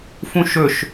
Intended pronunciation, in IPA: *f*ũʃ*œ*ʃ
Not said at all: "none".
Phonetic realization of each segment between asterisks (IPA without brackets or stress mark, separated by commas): f, ɵ